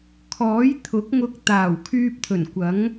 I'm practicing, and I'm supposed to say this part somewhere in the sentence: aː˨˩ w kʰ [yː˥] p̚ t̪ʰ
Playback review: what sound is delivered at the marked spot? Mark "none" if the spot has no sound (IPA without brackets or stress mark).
yː˧